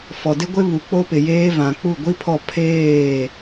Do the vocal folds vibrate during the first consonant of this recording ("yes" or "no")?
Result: no